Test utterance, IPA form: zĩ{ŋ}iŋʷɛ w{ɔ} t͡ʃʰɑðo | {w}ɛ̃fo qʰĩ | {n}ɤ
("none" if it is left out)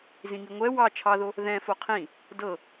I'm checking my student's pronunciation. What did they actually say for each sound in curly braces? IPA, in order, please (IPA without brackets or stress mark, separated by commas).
ŋ, ɑ, ð, d